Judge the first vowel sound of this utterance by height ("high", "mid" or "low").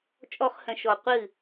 mid